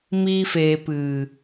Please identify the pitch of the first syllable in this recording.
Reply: high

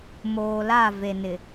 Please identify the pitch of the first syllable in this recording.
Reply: low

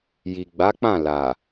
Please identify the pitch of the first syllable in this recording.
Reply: low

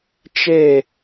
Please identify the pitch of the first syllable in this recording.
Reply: falling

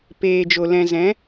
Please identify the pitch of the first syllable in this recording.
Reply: low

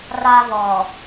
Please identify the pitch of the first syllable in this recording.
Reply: high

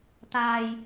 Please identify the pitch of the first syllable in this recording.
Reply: low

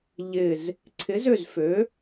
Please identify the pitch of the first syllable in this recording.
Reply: low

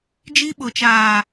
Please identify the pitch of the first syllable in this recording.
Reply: high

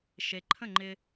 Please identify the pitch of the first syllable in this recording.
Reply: low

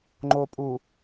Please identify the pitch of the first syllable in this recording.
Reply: low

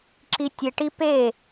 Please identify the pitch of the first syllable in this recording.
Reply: high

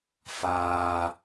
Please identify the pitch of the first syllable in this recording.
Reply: high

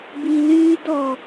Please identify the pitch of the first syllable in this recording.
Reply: low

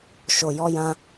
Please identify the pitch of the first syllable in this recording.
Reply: low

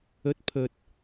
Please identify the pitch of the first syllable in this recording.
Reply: rising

